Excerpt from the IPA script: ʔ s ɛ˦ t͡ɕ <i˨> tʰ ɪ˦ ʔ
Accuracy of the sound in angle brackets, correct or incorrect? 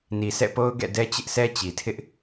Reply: correct